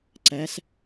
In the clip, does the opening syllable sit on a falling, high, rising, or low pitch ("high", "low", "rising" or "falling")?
rising